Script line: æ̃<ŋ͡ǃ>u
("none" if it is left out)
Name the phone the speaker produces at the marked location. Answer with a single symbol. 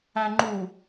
ŋ͡ǃ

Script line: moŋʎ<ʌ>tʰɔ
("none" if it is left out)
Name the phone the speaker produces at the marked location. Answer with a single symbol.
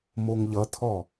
ʌ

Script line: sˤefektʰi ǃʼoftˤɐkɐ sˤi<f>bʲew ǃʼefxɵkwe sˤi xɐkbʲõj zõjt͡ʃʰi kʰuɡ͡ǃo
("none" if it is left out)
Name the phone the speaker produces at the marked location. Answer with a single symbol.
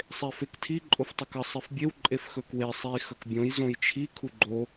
f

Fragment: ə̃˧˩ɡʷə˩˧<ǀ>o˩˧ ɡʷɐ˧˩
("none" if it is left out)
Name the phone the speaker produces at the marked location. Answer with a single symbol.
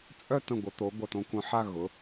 t̪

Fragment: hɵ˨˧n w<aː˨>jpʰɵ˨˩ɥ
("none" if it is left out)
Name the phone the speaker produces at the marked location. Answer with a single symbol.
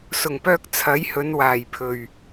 aː˨˩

